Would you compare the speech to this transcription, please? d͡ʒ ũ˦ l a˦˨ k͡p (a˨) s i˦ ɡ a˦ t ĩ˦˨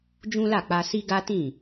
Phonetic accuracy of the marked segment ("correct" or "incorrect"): incorrect